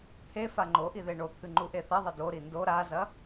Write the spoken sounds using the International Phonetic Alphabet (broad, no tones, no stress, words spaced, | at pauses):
t̪ʰefa ŋ͡ǃoʔiðe ɳot̪ʰɨŋ͡ǃuʔe θɐðˤɐ do ɾindo ɾazɐ